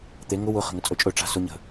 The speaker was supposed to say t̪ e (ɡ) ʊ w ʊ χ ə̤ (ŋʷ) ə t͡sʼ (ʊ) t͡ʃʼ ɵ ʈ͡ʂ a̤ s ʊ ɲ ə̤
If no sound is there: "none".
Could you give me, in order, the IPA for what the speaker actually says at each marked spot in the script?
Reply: ŋ, ŋ, ɵ

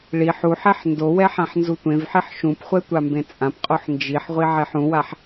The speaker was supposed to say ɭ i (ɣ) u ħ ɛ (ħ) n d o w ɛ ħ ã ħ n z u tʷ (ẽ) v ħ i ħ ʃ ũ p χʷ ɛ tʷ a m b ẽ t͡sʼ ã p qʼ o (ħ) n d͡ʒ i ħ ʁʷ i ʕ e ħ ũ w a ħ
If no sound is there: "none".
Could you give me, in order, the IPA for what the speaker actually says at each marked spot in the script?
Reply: ħ, ħ, ẽ, ħ

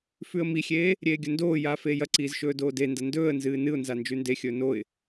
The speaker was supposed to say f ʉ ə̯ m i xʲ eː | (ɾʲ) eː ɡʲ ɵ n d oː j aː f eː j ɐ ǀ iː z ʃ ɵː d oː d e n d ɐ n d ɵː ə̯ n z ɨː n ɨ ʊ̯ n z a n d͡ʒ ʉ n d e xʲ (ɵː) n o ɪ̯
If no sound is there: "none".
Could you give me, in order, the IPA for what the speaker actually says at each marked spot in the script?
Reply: ɾʲ, ɵː

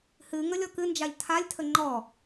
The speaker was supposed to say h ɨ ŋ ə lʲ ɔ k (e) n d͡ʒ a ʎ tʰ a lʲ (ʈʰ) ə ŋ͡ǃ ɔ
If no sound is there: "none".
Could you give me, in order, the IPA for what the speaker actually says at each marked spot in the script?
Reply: ɨ, tʰ

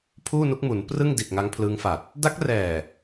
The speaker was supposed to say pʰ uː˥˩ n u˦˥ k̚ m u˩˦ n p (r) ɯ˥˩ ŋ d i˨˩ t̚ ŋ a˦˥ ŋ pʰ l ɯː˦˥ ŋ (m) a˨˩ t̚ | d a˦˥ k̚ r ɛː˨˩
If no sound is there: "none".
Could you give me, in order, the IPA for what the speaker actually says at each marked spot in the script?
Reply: r, f

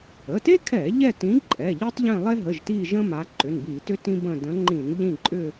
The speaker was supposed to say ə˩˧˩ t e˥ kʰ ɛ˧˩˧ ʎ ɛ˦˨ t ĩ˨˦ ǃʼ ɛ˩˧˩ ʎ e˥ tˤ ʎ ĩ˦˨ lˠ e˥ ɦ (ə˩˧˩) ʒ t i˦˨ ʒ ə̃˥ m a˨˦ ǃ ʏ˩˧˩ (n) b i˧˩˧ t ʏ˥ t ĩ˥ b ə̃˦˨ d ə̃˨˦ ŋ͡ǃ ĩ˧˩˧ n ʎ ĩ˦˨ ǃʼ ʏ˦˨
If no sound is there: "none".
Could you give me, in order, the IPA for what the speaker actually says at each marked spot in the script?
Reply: ə˩˧˩, n

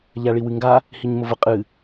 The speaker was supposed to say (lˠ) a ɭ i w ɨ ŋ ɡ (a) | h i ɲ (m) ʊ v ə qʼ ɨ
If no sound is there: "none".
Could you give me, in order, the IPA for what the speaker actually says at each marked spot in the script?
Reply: ʎ, a, m

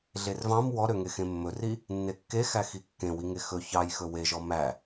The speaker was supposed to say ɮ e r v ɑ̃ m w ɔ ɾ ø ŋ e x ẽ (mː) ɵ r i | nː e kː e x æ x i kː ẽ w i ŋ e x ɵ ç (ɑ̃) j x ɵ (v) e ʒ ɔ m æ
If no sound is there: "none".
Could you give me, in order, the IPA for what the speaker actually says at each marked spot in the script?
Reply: mː, ɑ, w

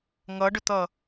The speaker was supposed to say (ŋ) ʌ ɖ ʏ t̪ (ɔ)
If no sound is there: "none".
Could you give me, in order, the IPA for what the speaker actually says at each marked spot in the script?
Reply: ŋ, ʌ

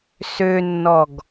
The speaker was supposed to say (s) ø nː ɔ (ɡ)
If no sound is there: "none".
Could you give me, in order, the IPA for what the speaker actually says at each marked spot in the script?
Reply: s, ɡ

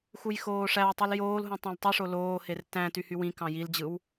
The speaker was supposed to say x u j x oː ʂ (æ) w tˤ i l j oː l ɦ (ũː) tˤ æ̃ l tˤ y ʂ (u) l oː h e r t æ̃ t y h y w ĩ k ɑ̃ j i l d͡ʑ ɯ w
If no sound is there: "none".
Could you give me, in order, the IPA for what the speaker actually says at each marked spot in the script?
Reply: æ, ũ, o

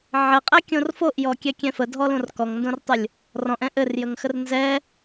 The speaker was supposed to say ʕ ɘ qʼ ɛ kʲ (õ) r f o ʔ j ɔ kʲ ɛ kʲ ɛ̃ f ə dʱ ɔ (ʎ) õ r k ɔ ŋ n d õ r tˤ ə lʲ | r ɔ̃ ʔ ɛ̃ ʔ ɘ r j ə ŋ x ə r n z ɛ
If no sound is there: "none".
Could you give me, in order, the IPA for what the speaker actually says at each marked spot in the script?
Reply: õ, l

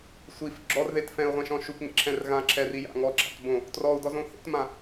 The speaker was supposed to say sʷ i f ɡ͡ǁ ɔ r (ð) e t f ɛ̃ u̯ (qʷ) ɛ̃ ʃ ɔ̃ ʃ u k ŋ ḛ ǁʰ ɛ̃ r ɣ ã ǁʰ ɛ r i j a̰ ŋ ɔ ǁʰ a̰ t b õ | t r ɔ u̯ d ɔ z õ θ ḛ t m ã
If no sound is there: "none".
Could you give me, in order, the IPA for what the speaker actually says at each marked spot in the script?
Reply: ð, ʁʷ

